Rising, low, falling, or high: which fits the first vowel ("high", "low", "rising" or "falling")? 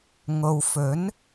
low